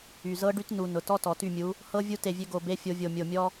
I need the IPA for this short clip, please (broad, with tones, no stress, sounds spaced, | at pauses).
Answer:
y˩ z ɤ˧˥ ɖ y˧˥ t n u˩ n ʊ˩ t ɔ˧ t ɔ˩ t y˧˩ mʲ u˩˧ | h ɤ˧ vʲ u˧˥ t e˧˩ vʲ ø˧ ɡ o˧˩ b e˧˥˧ fʲ o˧ vʲ o˧˩ mʲ o˧˩ mʲ ɔ˧